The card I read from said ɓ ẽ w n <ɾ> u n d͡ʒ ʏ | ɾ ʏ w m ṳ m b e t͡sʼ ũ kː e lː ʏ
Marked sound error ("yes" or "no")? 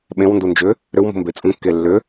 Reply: yes